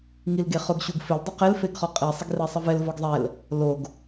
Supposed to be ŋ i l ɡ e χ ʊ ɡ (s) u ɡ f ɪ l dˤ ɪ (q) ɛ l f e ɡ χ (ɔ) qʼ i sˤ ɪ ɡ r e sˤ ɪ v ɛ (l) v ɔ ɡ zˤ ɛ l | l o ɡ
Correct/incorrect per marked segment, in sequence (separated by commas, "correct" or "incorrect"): incorrect, correct, correct, correct